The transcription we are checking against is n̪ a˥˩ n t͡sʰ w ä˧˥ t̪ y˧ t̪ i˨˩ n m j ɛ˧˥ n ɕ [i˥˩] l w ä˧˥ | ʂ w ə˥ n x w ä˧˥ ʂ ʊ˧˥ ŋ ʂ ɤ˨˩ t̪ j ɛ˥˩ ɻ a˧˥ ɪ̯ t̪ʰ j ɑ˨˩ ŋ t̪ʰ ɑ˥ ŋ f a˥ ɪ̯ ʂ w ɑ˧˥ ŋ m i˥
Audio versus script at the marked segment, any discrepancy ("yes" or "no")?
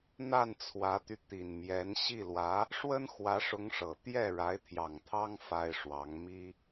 no